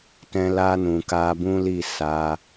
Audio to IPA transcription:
t ɛ̃˧ l a˧ n ũ˨ k a˧ b ũ˦ l i˦˨ s a˧

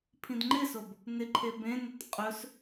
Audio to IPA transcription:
pʰ ĩ d ŋ͡ǃ ɪ s o b | n ɪ ǃʰ e b ẽ n ɪ t qʼ ɵ s

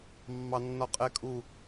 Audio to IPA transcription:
mː ɑ nː ɒ qʼ ɛ kʼ u

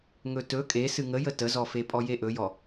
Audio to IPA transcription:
ŋ ɵ t ɵ kʼ e s ɨ ŋ ə j ə t ə z ɔ f e pʼ ɔ j e ʔ ɵ j ɔ

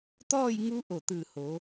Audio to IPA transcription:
t̪ ɔː˥˨ j ŋ u˧˥ ʔ o˧˩ t̪ ɯː˧˩ h o˩˧

